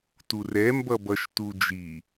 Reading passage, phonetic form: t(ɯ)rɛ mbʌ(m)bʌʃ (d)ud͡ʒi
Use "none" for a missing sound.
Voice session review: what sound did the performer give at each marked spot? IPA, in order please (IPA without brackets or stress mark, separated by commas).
u, none, t